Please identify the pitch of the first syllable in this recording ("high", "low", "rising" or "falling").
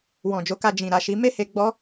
low